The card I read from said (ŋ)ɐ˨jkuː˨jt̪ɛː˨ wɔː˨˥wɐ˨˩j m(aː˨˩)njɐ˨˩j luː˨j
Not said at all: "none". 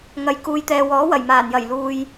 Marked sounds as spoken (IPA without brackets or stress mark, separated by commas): ŋ, aː˨˩